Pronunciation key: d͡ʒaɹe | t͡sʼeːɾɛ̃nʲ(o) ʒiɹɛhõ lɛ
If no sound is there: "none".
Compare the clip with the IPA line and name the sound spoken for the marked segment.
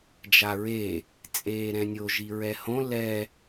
o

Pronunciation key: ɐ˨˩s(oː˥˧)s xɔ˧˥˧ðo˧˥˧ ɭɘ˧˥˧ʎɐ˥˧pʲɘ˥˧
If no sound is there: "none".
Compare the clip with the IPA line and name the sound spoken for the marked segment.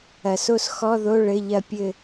o˥˧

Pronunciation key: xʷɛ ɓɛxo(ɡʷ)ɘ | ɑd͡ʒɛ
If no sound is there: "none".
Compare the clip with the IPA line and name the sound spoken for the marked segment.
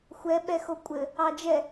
kʷʼ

